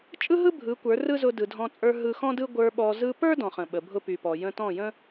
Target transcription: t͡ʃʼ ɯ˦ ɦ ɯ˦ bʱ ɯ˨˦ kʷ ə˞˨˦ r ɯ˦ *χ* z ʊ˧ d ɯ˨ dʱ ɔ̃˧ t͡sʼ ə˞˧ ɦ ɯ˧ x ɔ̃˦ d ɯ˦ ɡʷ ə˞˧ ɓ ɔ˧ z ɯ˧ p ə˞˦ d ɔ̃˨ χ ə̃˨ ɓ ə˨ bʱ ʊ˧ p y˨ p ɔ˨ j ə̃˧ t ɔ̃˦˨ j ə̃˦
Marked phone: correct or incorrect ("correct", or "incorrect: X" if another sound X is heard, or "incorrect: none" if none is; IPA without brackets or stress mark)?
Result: incorrect: none